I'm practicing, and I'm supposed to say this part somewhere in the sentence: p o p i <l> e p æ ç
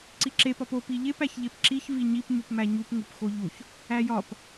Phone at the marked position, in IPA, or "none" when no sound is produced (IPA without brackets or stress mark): ʎ